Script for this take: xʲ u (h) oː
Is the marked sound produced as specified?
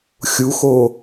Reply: no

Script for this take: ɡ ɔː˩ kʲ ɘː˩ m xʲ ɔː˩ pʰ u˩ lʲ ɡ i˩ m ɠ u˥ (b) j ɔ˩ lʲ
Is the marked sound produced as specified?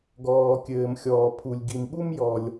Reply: no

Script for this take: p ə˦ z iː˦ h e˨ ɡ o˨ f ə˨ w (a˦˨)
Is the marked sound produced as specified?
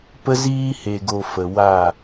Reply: yes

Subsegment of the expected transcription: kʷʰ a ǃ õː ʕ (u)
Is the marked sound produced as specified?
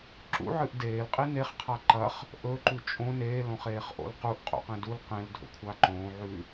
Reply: no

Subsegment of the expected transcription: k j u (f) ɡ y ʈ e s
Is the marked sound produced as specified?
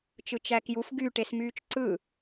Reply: yes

